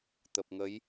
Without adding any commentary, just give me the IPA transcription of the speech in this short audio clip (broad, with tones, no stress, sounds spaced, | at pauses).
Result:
t̪ ə˨˩ p̚ ŋ ə˨˦ j